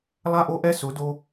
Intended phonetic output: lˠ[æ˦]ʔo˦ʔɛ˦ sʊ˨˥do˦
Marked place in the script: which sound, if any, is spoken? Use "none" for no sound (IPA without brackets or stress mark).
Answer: a˦